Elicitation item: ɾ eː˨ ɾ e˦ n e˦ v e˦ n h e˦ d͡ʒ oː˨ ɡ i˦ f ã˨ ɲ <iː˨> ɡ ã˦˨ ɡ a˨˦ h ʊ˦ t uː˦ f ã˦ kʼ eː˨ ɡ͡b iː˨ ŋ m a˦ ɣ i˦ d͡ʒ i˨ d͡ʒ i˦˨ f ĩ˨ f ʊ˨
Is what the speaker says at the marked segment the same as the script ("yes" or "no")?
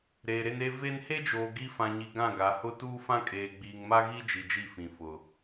no